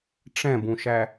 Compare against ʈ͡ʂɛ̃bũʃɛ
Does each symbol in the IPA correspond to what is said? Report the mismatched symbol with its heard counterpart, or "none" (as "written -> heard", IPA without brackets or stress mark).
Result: ɛ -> æ